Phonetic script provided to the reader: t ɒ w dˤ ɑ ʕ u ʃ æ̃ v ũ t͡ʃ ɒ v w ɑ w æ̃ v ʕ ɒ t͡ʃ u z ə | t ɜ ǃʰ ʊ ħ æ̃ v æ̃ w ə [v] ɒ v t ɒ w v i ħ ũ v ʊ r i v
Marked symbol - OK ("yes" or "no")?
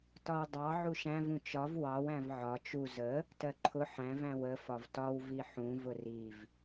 no